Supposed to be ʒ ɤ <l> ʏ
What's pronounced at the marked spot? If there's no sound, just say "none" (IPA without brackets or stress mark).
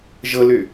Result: l